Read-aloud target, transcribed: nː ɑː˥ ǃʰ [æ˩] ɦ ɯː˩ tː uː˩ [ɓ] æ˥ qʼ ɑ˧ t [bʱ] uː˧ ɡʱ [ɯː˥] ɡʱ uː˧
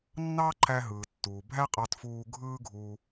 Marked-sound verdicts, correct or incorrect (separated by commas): incorrect, incorrect, incorrect, correct